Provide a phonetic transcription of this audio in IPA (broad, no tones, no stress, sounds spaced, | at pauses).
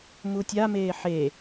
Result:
m u tʲ a m eː ħ e